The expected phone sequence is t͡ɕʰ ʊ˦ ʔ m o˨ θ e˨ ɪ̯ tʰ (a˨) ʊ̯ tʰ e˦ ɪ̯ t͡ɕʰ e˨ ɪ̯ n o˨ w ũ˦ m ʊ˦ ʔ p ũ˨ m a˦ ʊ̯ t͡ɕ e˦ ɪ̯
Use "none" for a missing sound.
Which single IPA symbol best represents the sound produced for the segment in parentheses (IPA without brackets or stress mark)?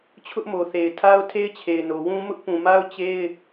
a˦